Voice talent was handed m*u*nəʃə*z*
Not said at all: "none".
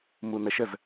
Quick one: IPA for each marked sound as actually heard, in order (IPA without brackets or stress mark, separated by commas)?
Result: u, z